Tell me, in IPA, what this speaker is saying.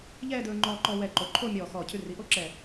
ʎɛː˥˧dɵː˧ŋ͡ǃɔː˧ǃɔ˧ wɛ˧˩ǃo˩˧ǃʰo˥˧mʲɔː˧˩ xɔ˧˩ cʰʉ˧ri˩˧ʔo˥ǁɛ˧˩

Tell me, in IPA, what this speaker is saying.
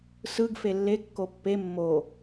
sɯɡ felːe kːopːe mːo

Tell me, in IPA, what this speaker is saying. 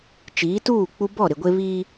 t͡ʃiː˨˦tuː˦˨k͡pu˦ bɔ˦˨ ɾɪ˨ɡʷe˦ βiː˦

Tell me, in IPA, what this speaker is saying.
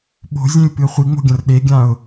ɓo̤zʲẽlʲ pɨə̯χʷiŋ͡mo̤ɡʲɐ̃r ɗeɡʲãʊ̯

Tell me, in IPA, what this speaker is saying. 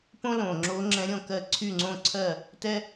põ˥lõ˨˩ŋ͡ǁo˧˥ ŋ͡ǁɛ̃˧˥ɾʲõ˥˩kɜ˥˩ ǀʰy˥˩ŋ͡ǀõ˥˩ǀʰɜ˥˩ | tɛ˥

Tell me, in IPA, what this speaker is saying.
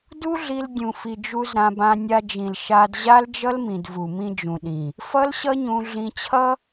du˦ɮi˧l dʲũ˨fi˨d͡ʒu˧z ɾã˧bã˧ nʲa˧d͡ʒĩ˨l ʃa˧d ʑa˦ld͡ʒʌ˦lmĩ˨d vu˨mĩ˧d͡ʒũ˨ɗĩ˨ | fʌ˦lɕʌ˦ɲũ˧ ɮĩ˧t͡ɕʰʌ˦

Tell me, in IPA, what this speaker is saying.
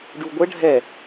ɖuɡʷə ɖʱɛ

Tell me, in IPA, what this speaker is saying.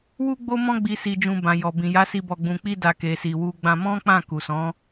wu˦ɡ͡bo˦mɔ̃˦ ɡ͡bi˧ si˧d͡ʒũ˧ bã˨jɔ˨bĩ˨ ja˨˦si˧ bɔ˧ɡ͡bũ˧k͡pi˦da˧ ke˨si˨ wu˧ɡ͡bã˧ mɔ̃˦k͡pã˦˨ku˨sɔ̃˨˦

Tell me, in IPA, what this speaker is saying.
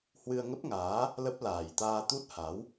hwɨ˧ə̯ŋə˦˥p̚ŋaː˨˦ | lə˦˥p̚laː˨˩j t̪aː˧t̪u˦˥t̚ha˨˦w

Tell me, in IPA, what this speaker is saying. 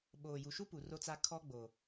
ɓoː˨ju˨ʃu˦pu˨ ro˦t͡sa˦ kʰɔ˦ɡ͡boː˨

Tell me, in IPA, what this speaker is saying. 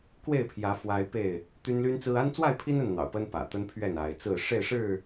kwe˥˨ɪ̯pʰjä˨˦ fwa˦ɪ̯pe˥˨ɪ̯ | t̪y˦nly˦nt͡sɹ̩˦ a˦nt͡swa˥˨ɪ̯pʰi˦n ə˥˨nn̪ɑ̰˨˩ʊ̯pə˦n pä̰˨˩t̪ə˦npʰɥɛ˥˨n a˨˦ɪ̯t͡sɹ̩˥˨ ʂe˥˨ɪ̯ʂɻ̩˥˨

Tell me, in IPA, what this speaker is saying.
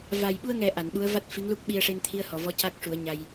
va˨˩jɓu˧ə̯ŋɛ˨˩˦ ʔa˨˩˨nɓu˧˥ə̯ va˦˥t̚fi˧˥ŋlu˦˥k̚ɓi˧ə̯ ʂe˧nt̪ʰi˧˥ə̯hɔ˨˩vɔ˧˥ ca˦˥k̚ʂu˨˩˦ə̯ɲa˧j

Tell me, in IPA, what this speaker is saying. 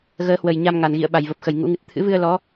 ɣəː˨˦hwə˨˩j ɲa˧mŋa˨˩n ɣḭ˧˨ə̯ɓa˨˩jvə˨˩p̚xə˨˩j ŋṵ˧˥ŋɨ˨˩t̚ t̪ʰɨ̰˧˥vɨ˧ə̯lɔ˨˦

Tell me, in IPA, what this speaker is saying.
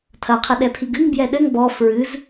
tʰɐqʰɘɗɛpʰiɡ ɨŋbjɛ ɗɘŋ bɔ fɹɨz

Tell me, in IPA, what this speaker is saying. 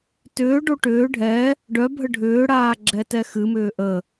tʏːɖo ʈʏː ɖʱɛ | ɖœ bʱəɖʱʏːɽaː ɡ͡ǁɛtɛxɨmʏː ʔə

